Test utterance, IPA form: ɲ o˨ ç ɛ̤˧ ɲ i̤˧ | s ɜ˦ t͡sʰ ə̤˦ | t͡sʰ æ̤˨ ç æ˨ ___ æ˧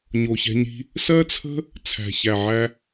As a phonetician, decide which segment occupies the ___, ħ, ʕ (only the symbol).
ʕ